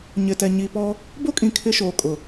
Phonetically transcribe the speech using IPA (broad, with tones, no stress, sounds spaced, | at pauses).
ɲ ɪ˨ t ɛ˨ ɲ i˨ p ɔ˦ | b o˦ kʼ ĩ˨ kʰ ɪ˦ ʃ oː˨ kʼ ʊ˨